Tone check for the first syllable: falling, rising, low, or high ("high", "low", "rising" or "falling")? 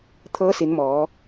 rising